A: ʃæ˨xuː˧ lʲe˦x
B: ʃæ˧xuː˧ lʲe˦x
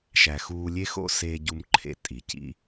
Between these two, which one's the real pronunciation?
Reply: A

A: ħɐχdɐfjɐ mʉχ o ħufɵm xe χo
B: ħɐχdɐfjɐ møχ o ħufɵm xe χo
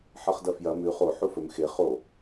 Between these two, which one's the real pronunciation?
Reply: A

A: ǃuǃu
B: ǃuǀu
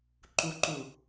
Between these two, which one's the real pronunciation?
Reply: A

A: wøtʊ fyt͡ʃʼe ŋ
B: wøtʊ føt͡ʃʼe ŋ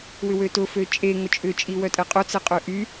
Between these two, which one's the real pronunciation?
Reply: B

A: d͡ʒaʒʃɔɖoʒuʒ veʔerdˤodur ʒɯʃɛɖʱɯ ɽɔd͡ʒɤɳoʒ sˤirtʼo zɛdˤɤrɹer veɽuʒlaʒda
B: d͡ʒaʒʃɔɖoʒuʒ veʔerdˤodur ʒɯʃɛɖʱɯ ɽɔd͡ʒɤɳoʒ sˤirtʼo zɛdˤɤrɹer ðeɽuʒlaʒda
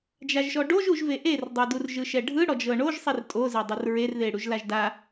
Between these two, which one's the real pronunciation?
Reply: B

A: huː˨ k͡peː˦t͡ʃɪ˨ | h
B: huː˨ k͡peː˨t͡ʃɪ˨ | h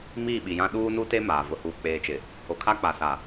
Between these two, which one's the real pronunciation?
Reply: B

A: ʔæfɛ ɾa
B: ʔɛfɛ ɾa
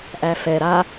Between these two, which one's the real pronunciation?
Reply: A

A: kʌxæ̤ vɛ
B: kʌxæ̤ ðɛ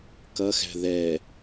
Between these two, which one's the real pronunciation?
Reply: B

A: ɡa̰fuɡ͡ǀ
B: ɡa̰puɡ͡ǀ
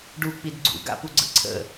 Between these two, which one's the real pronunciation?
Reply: B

